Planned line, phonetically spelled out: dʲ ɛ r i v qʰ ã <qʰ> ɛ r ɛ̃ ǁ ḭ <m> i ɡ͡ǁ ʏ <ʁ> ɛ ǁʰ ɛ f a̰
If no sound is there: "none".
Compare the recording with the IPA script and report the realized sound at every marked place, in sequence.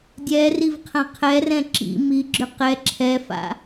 qʰ, m, q

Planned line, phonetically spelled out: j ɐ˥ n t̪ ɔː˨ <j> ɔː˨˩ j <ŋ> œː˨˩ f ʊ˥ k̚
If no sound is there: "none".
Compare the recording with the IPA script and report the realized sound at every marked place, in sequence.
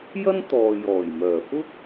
j, m

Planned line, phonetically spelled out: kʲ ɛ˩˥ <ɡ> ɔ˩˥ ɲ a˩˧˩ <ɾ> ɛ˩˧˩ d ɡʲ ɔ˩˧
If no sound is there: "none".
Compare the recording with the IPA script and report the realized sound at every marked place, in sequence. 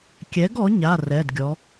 ɡ, r

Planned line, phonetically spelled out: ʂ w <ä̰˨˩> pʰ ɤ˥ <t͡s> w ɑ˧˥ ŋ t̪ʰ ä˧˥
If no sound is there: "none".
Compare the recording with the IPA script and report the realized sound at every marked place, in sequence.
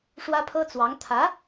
ä˥, t͡s

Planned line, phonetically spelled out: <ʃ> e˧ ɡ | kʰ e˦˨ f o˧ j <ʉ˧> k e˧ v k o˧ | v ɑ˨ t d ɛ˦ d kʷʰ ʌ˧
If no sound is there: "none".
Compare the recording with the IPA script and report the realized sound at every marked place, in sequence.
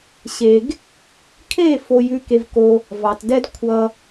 ɕ, ʉ˧

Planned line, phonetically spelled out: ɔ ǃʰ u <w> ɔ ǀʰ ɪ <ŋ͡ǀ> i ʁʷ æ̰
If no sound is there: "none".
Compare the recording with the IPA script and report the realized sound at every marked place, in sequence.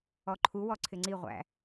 w, ŋ͡ǀ

